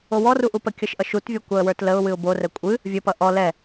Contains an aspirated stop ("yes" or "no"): no